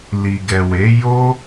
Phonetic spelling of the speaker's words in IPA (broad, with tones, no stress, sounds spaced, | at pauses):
l i˨ ɡ ɛ˨ w e˨˦ j o˦